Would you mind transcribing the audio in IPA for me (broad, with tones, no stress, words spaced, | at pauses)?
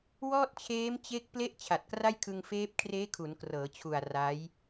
wɔː˥˩t̚t͡ɕʰeː˦˥mt͡ɕe˦˥k̚ ple˥˩ʔ t͡ɕʰa˨˩t̚kra˥˩jkʰɯ˧ŋfeː˦˥p̚ kʰreː˦˥kʰu˩˦n krɤː˩˦t͡ɕʰu˨˩a̯ ra˦˥j